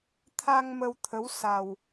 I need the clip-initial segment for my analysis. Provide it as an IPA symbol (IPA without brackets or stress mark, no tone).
t̪ʰ